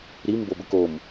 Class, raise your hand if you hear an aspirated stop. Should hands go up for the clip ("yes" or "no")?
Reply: no